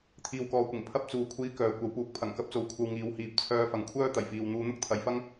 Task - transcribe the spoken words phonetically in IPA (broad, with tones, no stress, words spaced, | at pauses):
t̪ʰiː˧wkɔː˧kʷɪ˨˩ŋ pʰɐ˥p̚ t͡suː˨kʷʰiː˧ kœː˨kʷɐ˨˥wpuː˨k̚ pʰɐ˨˩ŋkɐ˧p̚t͡so˨˧w kʷʰɐ˧wŋiː˨˧w hiː˨˥p̚ t͡sʰœː˧fɐ˨ŋ kʷʰœː˥t̪ɐ˨˩jfiː˨w n̪uː˨˧n̪ʊ˥k̚t̪ʰɐ˨jfɐ˥ŋ